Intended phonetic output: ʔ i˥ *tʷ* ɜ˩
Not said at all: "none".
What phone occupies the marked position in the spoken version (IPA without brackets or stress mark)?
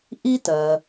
t